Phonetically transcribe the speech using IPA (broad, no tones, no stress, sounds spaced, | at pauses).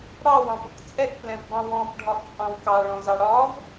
ɽ ɑ w ɑ̃ p ʊ k t͡sʼ ɛ k p l ɛ̃ v b ɑ̃ w ɔ̃ p ɖʱ ɒ ʔ t͡sʼ ɑ̃ w k ɑ ɭ ɔ̃ z ɑ ɽ ɒ v